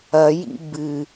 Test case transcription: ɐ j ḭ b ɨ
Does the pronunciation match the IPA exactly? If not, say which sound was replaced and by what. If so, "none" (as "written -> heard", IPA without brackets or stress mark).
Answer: none